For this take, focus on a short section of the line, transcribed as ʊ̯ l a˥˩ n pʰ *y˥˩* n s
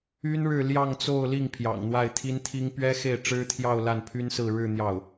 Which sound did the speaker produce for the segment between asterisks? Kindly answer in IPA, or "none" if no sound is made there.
y˥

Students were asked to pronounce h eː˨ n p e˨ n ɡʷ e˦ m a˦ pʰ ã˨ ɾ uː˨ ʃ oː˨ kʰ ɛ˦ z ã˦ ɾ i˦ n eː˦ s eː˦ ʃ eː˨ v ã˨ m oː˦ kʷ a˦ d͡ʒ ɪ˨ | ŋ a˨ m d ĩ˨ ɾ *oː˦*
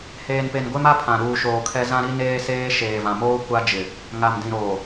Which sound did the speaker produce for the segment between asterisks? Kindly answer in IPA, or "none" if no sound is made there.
oː˨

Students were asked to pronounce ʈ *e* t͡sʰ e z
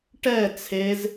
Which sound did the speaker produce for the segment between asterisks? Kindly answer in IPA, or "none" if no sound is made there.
ɛ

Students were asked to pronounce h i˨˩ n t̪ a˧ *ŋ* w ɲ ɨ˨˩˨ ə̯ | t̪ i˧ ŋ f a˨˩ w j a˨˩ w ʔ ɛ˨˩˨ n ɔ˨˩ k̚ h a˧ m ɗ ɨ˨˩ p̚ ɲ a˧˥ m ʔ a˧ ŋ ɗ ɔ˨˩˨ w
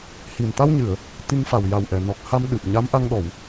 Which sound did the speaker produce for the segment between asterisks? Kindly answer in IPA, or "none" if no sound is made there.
none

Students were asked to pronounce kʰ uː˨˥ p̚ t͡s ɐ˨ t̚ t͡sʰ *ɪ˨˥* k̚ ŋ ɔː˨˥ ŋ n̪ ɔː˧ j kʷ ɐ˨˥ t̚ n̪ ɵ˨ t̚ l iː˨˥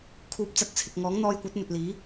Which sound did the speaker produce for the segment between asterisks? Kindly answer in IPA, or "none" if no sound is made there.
ɪ˨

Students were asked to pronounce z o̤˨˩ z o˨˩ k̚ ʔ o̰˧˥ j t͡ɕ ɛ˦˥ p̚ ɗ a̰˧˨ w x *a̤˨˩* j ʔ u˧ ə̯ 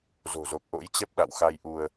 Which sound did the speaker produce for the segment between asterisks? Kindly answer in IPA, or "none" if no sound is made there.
a˧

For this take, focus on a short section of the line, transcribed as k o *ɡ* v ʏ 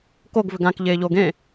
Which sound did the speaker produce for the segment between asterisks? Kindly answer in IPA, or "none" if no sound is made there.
ɡ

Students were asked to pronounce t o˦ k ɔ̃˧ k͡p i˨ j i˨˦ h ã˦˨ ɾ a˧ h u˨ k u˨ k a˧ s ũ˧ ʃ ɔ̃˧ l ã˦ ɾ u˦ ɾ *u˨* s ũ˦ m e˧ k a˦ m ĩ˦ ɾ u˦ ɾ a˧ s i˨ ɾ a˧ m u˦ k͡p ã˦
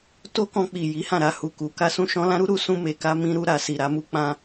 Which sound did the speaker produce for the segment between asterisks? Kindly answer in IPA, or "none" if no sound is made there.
u˦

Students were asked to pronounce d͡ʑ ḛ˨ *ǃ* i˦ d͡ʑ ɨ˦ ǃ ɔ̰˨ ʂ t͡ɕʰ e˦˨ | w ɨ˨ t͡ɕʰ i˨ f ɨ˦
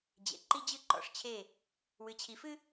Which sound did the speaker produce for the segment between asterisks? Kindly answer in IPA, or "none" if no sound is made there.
ǃ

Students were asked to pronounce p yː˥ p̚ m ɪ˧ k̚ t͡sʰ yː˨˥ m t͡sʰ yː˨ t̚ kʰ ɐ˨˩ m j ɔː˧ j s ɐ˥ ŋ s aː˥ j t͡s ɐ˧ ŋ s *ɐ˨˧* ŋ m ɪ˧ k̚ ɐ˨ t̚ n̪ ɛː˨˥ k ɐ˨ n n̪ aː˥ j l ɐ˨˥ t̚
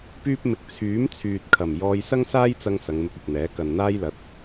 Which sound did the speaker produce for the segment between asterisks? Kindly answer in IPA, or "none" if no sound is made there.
ɐ˨˧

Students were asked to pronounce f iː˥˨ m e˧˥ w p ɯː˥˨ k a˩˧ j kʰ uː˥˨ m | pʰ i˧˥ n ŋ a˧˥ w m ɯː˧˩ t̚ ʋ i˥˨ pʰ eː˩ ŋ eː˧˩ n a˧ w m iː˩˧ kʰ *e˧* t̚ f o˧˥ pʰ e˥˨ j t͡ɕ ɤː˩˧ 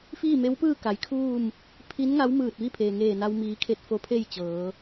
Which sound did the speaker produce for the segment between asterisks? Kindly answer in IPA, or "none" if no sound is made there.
e˧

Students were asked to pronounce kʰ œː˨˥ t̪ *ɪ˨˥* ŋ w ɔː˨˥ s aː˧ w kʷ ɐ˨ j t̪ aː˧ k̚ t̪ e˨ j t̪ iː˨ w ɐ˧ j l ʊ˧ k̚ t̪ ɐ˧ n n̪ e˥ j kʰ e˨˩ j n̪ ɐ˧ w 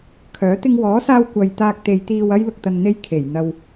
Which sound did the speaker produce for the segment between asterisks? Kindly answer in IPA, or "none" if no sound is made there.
ɪ˧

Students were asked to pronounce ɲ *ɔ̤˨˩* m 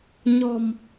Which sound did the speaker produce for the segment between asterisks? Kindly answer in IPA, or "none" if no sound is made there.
ɔ̤˨˩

